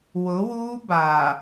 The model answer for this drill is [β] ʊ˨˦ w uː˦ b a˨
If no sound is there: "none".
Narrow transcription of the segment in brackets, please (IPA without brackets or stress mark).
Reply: w